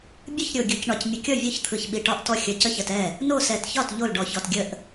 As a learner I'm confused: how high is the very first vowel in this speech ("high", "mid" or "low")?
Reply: high